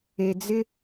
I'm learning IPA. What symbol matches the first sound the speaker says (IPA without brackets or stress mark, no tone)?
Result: e